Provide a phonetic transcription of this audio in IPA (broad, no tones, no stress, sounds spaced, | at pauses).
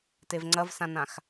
t e v ŋ͡ǀ ɐ v s ã n ã x